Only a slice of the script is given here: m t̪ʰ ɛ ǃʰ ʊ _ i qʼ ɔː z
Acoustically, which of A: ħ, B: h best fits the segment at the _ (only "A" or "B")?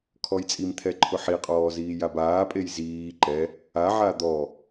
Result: A